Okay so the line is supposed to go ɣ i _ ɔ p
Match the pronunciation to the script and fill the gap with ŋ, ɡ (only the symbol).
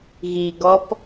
ɡ